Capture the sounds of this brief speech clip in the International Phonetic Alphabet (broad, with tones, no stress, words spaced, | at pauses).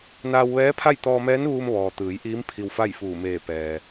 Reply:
naː˧wʋɛː˧˥pʰa˥˨j t̪ɔː˧mɛː˧˥nʋuː˧mʋɔː˩ t̪ɯː˩˧jʔiː˧˥m pʰi˧wfa˥˨jfuː˧˩ meː˧˩ pɛː˩